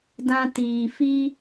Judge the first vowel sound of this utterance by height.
low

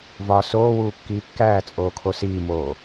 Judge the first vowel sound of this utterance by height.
low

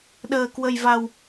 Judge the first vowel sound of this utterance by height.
mid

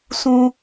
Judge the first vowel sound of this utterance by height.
high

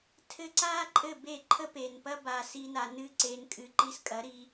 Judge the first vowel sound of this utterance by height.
mid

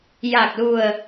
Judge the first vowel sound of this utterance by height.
low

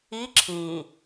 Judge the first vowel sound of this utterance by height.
high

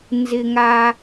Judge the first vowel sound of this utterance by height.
high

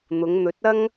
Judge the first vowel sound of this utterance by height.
high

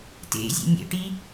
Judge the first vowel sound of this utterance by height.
mid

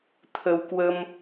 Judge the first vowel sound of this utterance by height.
mid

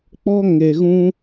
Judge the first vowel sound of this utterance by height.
mid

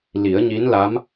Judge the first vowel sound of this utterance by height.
high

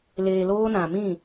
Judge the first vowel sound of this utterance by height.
mid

